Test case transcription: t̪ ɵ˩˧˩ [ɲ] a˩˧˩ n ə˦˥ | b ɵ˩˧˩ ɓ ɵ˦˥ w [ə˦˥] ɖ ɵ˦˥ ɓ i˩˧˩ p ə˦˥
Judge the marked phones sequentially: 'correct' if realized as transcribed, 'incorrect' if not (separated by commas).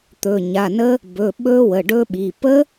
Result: correct, incorrect